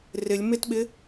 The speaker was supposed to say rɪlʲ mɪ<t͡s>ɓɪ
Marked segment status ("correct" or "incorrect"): incorrect